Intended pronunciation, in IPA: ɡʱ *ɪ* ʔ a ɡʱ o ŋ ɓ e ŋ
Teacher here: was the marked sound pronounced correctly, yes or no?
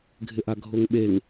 yes